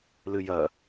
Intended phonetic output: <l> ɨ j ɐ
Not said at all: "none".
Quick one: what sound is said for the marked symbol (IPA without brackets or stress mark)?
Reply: l